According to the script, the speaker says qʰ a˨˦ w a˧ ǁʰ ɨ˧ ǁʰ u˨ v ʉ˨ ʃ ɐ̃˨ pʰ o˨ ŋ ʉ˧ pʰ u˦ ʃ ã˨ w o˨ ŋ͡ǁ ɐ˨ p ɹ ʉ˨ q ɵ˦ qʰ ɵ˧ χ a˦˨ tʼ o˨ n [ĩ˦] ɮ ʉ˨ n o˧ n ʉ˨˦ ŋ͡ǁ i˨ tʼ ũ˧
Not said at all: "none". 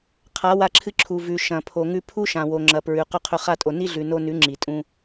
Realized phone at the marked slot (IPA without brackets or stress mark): i˦